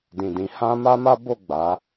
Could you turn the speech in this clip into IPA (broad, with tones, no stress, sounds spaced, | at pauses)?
d ĩ˨ d ĩ˨˦ h ã˦ m a˦ m a˦ b o˦˨ ɡ͡b a˨˦